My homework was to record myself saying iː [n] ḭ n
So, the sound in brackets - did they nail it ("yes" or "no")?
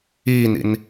yes